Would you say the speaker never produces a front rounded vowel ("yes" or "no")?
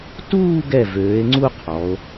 no